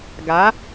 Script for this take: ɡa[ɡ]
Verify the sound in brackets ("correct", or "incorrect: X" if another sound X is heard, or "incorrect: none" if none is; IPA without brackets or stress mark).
incorrect: none